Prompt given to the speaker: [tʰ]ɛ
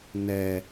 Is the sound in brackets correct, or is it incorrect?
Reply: incorrect